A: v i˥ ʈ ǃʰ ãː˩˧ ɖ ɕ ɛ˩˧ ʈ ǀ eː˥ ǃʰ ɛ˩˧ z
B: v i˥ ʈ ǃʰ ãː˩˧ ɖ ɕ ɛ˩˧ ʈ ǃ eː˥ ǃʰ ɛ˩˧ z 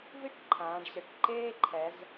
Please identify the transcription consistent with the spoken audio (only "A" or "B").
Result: B